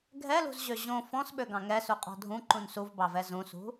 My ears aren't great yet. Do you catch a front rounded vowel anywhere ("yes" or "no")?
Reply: yes